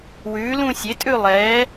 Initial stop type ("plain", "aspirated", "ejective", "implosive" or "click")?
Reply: ejective